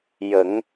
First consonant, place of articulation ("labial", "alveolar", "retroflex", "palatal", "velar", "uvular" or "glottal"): palatal